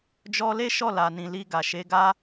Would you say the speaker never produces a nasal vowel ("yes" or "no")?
no